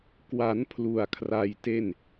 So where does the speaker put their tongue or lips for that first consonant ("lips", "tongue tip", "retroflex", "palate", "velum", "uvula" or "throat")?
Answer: velum